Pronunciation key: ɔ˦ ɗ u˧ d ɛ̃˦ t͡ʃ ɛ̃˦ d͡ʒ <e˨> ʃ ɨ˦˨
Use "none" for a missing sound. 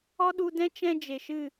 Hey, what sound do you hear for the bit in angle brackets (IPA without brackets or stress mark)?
e˨